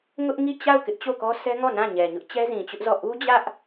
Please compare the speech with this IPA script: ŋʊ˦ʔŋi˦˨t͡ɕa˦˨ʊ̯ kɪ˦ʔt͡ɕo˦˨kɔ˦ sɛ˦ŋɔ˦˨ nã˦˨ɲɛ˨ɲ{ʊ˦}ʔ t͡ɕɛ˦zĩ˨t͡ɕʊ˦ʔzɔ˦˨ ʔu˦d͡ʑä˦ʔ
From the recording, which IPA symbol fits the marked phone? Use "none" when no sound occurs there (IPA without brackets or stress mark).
ʊ˦